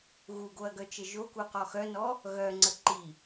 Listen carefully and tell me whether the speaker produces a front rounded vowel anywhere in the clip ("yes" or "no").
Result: yes